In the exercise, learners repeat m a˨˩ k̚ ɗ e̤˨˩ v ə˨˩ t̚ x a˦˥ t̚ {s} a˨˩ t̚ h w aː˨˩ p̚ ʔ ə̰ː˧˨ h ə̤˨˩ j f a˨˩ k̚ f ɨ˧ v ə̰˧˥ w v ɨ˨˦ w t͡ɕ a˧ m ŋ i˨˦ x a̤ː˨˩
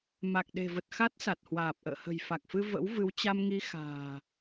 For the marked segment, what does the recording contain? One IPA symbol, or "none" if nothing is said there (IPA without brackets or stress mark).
s